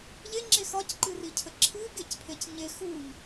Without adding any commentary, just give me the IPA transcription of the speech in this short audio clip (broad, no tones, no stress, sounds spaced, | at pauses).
ʎ e ŋ͡ǁ e x ɒ c ǃ ɨ r i cʰ ə ǁʰ ɨ ɡ e c pʰ e c ɲ e x u ʎ